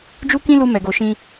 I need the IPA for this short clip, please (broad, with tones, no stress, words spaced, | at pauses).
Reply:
d͡ʒu˦kĩ˦lu˧ mɛ˨ɡo˨ʃĩ˧